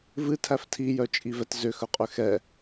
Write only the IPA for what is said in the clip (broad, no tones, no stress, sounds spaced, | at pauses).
v ɨ tʰ æ f tʰ i j œ t͡ʃʼ i v ɛ t z ʏ x œ qʼ ʏ x ɛ